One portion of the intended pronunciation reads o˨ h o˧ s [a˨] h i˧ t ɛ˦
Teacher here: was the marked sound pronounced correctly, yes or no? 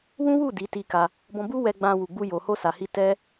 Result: yes